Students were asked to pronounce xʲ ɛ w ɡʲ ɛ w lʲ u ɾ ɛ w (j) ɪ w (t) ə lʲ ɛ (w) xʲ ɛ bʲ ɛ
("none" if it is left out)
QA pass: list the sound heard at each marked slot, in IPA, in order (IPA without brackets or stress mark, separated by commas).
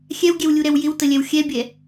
j, t, w